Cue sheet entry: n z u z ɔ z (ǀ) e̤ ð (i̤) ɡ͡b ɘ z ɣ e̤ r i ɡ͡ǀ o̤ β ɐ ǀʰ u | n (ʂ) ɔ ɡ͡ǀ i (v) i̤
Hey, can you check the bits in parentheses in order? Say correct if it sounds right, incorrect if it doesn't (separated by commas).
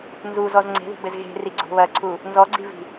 incorrect, correct, incorrect, correct